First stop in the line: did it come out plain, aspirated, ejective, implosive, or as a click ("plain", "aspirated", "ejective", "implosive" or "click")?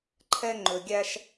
click